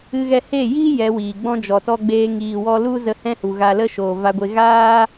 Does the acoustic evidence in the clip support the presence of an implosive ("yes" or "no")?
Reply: no